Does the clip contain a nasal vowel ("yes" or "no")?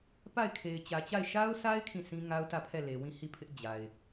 yes